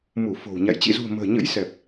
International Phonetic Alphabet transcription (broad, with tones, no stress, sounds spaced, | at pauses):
m u˧˩ f o̤˨˩ w ɲ a̰˧˨ j t͡ɕ ḭ˧˨ z ṳ˨˩ ə̯ m ə̤ː˨˩ ɲ ə̰˧˥ j s ɛ˨˩ p̚